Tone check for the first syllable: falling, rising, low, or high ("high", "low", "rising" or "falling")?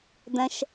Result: high